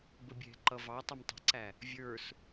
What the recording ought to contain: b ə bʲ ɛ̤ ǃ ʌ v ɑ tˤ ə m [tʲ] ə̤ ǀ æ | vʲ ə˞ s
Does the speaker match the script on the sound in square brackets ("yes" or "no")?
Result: no